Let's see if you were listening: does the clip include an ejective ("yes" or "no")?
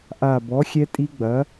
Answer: yes